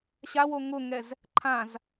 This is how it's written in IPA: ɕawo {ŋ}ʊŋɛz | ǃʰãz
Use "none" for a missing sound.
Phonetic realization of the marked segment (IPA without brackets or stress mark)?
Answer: ŋ